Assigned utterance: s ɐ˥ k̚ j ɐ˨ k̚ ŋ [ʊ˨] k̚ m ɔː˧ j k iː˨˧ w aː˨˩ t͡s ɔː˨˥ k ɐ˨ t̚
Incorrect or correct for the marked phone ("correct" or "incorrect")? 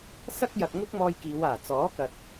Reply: incorrect